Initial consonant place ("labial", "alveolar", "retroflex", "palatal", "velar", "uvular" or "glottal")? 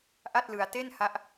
glottal